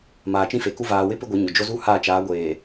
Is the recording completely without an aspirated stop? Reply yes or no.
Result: yes